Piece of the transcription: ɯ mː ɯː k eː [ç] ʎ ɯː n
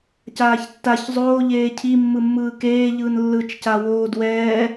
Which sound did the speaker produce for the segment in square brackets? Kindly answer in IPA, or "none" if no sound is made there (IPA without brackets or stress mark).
none